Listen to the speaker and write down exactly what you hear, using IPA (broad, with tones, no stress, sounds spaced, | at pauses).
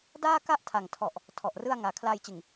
d aː˥˩ k a˥˩ ʔ tʰ a˨˩ ŋ tʰ ɔ˨˩ ʔ | tʰ ɔ˨˩ ʔ r ɯ˥˩ a̯ ŋ aː˨˩ kʰ l aː˧ j t͡ɕ ɯ˨˩ ŋ